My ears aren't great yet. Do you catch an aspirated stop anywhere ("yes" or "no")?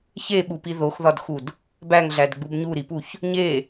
no